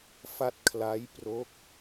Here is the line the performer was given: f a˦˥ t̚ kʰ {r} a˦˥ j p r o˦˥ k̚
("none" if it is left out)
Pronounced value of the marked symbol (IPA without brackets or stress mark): l